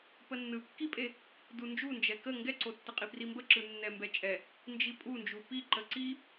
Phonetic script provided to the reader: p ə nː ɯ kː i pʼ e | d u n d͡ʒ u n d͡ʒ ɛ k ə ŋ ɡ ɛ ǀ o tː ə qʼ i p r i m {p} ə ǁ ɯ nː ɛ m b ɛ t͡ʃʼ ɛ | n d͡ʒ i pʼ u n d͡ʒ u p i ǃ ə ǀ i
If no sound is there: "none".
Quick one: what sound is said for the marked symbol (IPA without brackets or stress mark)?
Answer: b